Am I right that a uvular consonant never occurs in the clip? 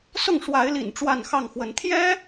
yes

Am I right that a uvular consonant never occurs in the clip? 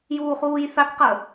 no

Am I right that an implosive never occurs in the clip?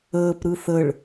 yes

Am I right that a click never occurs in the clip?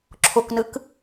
no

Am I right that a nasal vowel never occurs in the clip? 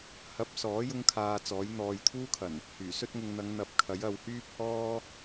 yes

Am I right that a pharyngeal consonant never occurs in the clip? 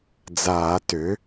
yes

